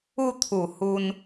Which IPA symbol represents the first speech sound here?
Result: u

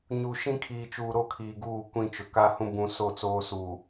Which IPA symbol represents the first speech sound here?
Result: ɲ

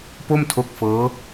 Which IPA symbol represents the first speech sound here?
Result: p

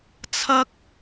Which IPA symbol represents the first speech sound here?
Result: t͡sʰ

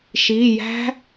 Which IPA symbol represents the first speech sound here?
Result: ʃ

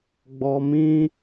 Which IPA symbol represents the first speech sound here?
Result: ɡ͡b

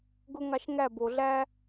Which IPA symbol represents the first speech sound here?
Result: ɡ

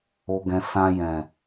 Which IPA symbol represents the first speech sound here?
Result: o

